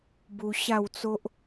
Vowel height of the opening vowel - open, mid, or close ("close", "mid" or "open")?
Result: close